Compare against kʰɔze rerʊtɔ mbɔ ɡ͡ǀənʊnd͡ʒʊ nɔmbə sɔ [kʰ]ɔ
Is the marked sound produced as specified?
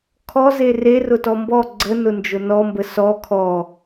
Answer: yes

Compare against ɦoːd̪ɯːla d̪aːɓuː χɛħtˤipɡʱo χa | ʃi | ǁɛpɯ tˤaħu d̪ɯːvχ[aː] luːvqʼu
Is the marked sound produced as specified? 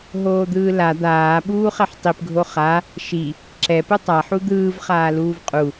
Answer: yes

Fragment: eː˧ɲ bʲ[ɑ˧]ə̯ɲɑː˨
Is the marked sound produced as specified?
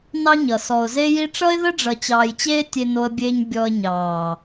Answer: no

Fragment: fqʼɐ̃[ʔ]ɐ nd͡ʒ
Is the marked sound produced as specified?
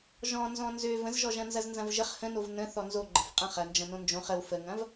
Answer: no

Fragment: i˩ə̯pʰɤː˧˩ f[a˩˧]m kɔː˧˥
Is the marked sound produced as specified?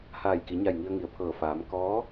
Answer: no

